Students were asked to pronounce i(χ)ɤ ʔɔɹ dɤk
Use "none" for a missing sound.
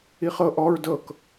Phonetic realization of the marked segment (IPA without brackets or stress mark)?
χ